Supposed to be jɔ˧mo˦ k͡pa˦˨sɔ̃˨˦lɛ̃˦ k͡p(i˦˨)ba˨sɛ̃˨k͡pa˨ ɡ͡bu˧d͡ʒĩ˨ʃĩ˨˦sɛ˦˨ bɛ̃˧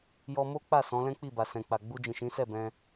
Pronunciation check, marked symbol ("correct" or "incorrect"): correct